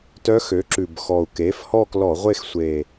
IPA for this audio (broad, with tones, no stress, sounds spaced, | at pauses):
t œ˧˥ x ø˩˥ ǁ ʉ˨˩ b x ɔ˨˩ u̯ k e˩˥ f h ɔ˦˨ k l ɔ˧˩˧ ʁʷ e˦˨ x sʷ e˨˩